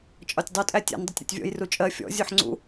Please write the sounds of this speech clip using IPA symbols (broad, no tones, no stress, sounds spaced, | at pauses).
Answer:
t͡ʃʼ ɒ tʲ dˤ u tʼ æ tʲ ɛ̰ n dˤ ʌ tʲ ɾ ɔ̰ tʲ vʲ ɔ̰ j r u t͡ʃʼ ɜ fʲ ɔ̰ zʲ u ħ ŋ͡ǀ ṵ